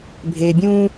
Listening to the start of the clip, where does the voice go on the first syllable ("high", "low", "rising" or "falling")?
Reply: low